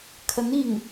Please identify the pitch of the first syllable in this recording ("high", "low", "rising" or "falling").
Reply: rising